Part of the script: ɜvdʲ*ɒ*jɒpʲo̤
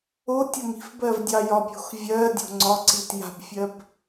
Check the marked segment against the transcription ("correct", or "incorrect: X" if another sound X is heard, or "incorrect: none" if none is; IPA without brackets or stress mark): incorrect: ɑ